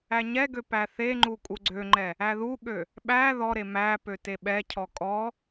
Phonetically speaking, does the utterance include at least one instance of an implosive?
yes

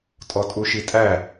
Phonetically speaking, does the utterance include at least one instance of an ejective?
yes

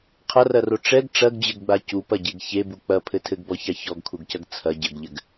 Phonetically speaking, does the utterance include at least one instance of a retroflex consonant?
yes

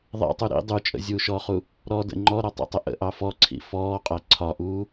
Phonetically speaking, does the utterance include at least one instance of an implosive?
no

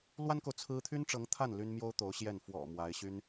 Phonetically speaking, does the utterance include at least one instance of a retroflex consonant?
yes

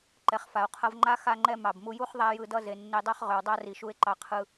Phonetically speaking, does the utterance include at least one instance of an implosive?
no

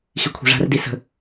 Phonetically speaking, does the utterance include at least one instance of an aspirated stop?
yes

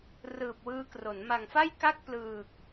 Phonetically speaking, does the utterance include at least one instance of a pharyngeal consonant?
no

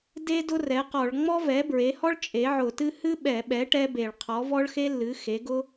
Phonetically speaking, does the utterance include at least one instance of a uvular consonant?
yes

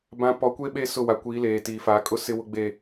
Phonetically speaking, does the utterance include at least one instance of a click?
no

